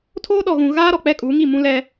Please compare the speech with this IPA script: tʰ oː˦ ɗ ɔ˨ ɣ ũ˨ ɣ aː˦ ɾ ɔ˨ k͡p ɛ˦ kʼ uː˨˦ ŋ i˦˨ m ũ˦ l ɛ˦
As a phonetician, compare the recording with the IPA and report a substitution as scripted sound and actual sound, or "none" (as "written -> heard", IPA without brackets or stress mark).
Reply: none